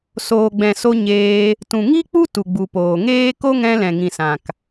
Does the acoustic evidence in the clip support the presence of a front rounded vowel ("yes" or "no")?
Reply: no